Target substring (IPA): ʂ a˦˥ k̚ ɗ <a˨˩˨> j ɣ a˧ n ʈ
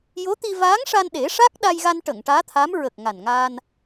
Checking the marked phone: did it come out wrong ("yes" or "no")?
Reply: yes